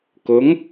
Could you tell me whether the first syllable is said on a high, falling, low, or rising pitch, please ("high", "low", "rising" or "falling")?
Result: rising